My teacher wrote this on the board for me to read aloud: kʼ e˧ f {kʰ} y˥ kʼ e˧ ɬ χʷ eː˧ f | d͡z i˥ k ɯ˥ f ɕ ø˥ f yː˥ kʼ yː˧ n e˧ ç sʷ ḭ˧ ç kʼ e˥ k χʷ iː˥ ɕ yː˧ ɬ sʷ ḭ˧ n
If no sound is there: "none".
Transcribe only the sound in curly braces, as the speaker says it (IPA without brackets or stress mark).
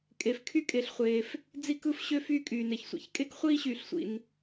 kʰ